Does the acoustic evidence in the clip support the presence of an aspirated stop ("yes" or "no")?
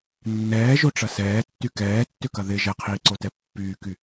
yes